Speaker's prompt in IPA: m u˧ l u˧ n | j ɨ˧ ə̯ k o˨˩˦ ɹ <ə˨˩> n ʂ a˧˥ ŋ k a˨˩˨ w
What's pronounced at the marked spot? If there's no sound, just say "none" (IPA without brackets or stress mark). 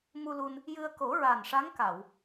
a˨˩